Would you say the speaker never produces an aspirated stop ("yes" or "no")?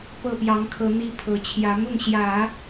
no